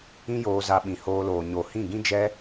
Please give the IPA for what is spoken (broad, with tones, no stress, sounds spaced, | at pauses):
ĩ˦ j oː˧ z a˧ ɓ ĩ˨ h oː˧ l oː˨ ɲ o˨ h ĩ˦˨ ɡ ĩ˦ d͡ʒ ɛ˦